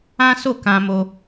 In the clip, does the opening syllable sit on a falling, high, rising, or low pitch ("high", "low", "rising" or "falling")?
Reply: high